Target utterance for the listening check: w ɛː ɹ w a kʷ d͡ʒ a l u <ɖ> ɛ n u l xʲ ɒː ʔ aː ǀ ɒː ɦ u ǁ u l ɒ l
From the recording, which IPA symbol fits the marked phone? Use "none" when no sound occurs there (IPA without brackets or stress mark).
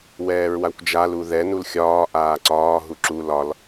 ð